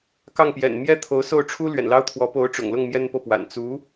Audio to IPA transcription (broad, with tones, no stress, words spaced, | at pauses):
kɑ˥˩ŋpjɛ̰˨˩n mjɛ˥t̪ʰo˧˥ʊ̯so˥˩ʊ̯ʈ͡ʂʰu˥ lɥɛ̰˨˩nlɑ˥ʊ̯t̪ʰwɔ˧˥ po˧˥ʊ̯ʈ͡ʂʊ̰˨˩ŋlʊ˥˩ŋ mjɛ˥npɤ˥˩pwa̰˨˩n t͡su˧˥